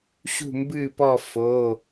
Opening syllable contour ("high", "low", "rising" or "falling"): falling